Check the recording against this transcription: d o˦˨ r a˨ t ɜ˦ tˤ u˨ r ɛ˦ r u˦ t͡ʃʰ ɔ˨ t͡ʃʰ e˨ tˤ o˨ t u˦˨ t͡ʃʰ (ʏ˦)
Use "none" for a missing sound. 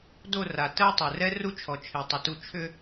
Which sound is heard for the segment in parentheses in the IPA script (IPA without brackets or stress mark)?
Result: ʏ˦